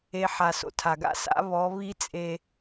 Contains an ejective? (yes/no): yes